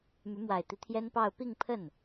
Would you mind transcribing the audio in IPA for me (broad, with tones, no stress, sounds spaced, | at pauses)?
m y˧˥ m w a˨˩ ɪ̯ t̪ i˦ t̪ʰ j ɛ˥ n p ɑ˥˧ ʊ̯ p i˥˧ ŋ pʰ ə˥˩ n